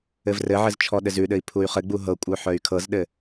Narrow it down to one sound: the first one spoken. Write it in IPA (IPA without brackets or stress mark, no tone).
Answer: ɘ